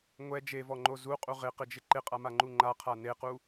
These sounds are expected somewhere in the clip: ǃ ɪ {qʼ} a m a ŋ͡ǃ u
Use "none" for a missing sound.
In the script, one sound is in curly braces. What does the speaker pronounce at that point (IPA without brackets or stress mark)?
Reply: qʼ